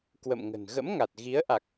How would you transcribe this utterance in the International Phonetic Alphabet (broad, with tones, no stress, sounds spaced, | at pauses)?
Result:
k w ə̰˧˨ m ŋ ə̤˨˩ n ɣ ə̰˧˥ m ŋ a˨˩ t̚ ɣ i˨˦ ə̯ ʔ a˨˩ k̚